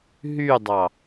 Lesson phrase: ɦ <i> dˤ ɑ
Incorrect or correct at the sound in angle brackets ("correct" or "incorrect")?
incorrect